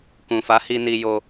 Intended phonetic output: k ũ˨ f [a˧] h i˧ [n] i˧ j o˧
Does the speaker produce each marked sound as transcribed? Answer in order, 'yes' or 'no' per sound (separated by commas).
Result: no, yes